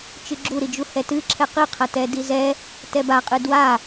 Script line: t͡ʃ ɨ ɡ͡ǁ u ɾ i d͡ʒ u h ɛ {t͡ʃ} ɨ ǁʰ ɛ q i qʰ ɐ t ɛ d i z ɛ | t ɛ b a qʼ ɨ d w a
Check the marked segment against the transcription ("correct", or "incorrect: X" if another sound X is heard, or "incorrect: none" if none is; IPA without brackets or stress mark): incorrect: t